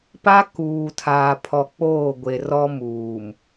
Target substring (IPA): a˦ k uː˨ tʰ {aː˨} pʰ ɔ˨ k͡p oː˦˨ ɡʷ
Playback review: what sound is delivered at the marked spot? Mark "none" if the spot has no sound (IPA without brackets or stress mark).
aː˨